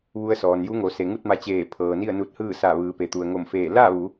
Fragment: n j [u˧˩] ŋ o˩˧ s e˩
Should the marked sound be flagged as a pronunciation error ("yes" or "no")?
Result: yes